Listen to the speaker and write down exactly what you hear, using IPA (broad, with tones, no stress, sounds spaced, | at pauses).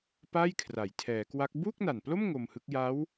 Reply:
p a˥˩ j kʰ r a˩˦ j tʰ ɛː˩˦ k w a˦˥ k̚ b uː˥˩ k̚ n a˨˩ n p l o˥˩ m ŋ o˧ m h ɯ˦˥ k̚ j a˦˥ w